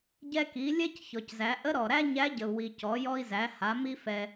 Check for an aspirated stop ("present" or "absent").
absent